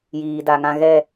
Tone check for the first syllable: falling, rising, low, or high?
low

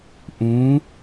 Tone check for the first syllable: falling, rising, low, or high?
rising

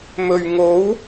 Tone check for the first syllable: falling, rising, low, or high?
low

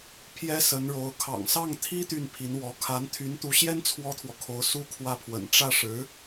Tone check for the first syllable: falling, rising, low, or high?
high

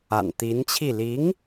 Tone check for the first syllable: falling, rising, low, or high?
low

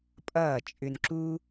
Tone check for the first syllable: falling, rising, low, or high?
falling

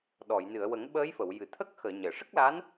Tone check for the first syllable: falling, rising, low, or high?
low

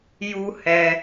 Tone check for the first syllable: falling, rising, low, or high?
high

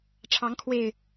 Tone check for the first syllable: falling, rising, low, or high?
rising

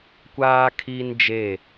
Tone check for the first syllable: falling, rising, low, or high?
high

